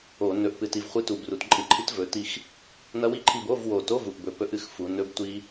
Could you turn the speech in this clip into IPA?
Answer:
o˧˩˧ nɵ˨˩ʔpɨ˨˩ti˨˩v χʷɨ˧˥˧tu˨˩b ru˩˧tǃʼɨ˧˩˧ǃʰi˦˥t vɵ˩˧ti˦˨x | nɐ˦˥wi˦˥ǃʰi˦˨b o˧˥˧vwo˨˩to˧˥˧ vu˨˩ʔbɵ˧˩˧ pɵ˦˥ʔɨ˦˨xfu˩˧ nɵ˦˥b tʷi˦˥

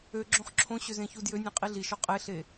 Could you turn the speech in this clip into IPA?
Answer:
øɡ͡ǁõχ ǁʰõɕø zẽçudjønʲẽ qʼiɮiʃɔ qʼeɬe

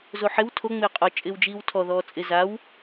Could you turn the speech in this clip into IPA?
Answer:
zoħɪw tʰoŋ͡mɪː qʼɔ t͡ʃʼɪːwd͡ʒiːwtʰɔ ðɔːt͡sʼɪ zaw

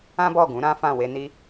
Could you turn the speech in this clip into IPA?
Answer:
ã˦bɔ˦˨ɡũ˨˦ɾã˦ fã˦˨we˧ni˦

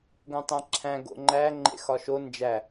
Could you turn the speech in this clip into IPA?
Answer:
ɡõtˤæ̃ǁʰæ̃ ɡo̰ŋ͡ǃæ ŋ͡ǃḛxɒʃo nd͡ʒæ

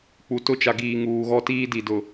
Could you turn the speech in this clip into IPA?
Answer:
k͡pu˨tʊ˦t͡ʃa˨ ɡiː˨ ŋuː˨ɣɔ˦tiː˦di˨ dʊ˨

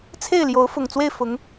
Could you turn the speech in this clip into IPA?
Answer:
t͡sʰe˥˩ɪ̯ljo˧˥ʊ̯ fʊ˨˩ŋt͡swe˥˩ɪ̯ fʊ˧˥ŋ

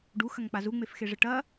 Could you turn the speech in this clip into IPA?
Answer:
ɖuxɐŋk͡pa zuŋ͡mefxeʐɘ ʈɐ

